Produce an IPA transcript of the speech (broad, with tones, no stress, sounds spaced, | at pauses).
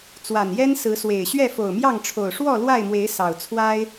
t͡s w a˨˩ n j ɛ˦ n s ɹ̩˨˦ s w e˨˩ ɪ̯ ɕ ɥ ɛ˥˨ f o˨˩ ʊ̯ m j ɑ˥˨ ŋ ʈ͡ʂʰ o˨˩ ʊ̯ ʂ w ɔ˥˨ l w a˥˨ ɪ̯ m w e˨˦ ɪ̯ s ɑ˨˩ ʊ̯ t͡sʰ w a˦ ɪ̯